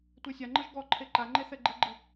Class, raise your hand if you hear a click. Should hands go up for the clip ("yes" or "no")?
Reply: yes